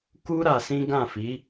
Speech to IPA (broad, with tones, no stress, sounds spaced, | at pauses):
k u˦ ɾ a˧ s ĩ˦ ɡ ã˦˨ f i˨˦